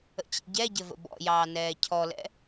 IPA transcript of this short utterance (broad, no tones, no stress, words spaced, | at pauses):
ə̰t͡ɕḭɟɛɟɘ və̰bɔ̰jɑː nɛːcʰɔlɛ̰